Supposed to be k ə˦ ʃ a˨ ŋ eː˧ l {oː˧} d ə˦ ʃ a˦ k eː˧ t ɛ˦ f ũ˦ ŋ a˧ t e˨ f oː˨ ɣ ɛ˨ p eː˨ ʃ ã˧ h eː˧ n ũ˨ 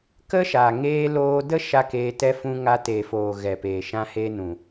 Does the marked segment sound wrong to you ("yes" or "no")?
no